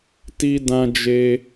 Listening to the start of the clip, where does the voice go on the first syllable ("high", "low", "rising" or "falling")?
high